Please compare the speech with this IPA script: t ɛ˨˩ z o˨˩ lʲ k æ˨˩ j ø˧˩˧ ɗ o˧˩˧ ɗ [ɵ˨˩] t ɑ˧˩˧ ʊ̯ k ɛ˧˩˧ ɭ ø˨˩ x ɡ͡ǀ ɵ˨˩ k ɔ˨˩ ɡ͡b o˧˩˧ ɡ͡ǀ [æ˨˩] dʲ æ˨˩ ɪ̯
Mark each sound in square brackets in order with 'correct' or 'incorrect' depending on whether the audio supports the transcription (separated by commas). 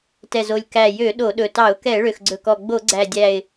correct, correct